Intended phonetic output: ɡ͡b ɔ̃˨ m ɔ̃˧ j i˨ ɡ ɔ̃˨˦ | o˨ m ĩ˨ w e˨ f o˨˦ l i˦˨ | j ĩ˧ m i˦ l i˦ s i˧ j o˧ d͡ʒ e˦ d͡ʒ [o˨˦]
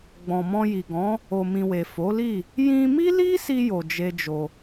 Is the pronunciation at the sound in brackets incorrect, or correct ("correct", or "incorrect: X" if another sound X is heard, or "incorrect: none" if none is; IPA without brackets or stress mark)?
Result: incorrect: o˧